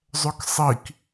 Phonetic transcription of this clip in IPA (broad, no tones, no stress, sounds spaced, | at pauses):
zˤ œ k sˤ i k